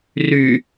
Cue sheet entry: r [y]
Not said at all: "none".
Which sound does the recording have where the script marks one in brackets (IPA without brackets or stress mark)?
y